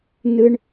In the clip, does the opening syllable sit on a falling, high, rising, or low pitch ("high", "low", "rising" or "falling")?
high